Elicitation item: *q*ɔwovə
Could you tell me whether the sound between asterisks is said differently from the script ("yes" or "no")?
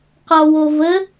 no